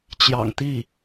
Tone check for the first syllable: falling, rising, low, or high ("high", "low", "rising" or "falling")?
low